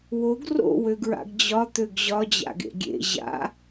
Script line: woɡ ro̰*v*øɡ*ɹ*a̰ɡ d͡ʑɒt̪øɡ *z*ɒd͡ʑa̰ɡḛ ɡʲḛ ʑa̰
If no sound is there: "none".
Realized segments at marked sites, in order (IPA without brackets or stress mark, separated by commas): w, ɹ, ʑ